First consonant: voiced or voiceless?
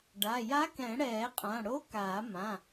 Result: voiced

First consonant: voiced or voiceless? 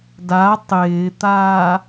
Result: voiced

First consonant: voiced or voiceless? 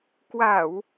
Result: voiceless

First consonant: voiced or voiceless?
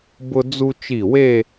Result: voiced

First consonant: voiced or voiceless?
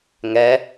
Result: voiced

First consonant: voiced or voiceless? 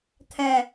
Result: voiceless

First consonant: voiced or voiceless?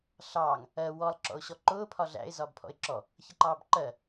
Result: voiceless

